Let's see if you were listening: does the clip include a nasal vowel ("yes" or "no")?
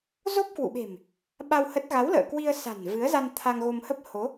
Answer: no